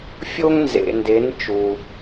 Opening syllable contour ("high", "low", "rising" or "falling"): high